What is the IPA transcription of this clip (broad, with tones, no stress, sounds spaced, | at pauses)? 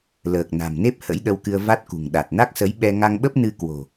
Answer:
l əː˨˩ k̚ n a̤˨˩ m n e˦˥ p̚ h ə̰˧˥ j ɗ ə˧ w k ɨ˧ ə̯ v a˦˥ t̚ k ṳ˨˩ ŋ ɗ a˨˩ t̚ n a˦˥ k̚ s ə˨˦ j ɓ ɛ˧ ŋ a˧ ŋ ɓ ə˦˥ p̚ n ɨ˧ k w o̤˨˩